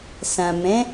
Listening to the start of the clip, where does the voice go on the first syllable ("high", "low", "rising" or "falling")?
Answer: low